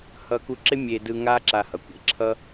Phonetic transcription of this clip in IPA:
h ʌ˧ k u˧ ǁ ɪ˦ mʲ e˧ d ɯ˧ ŋ a˦ ǁ a˧ h ʌ˨ kʷ ḛ˨ ǁʰ ʌ˦

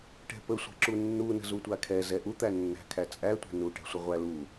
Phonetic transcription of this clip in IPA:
ʈ ɛ̤ p ə sʷ ɛ̤ ǁ u nː u n ə̤ z u tʷ a kʰ ɛ z ɛ ʔ u t̪ æ nː æ̤ kʰ æ t͡sʼ æ tʷ æ̤ n u ʈ ɛ̤ sʷ ə ʁʷ æ l u

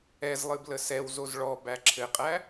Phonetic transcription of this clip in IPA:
ɛ z lˠ ɨ b l ə s ɛ w z o z ɭ ɔ b æ ǁʰ ɘ qʼ æ

